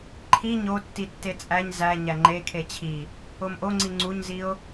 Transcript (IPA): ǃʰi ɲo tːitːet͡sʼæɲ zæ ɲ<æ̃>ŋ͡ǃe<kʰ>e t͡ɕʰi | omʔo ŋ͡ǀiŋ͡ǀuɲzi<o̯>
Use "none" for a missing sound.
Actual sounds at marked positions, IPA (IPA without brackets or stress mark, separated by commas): æ, kʰ, o̯